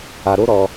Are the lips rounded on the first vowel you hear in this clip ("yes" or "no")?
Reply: no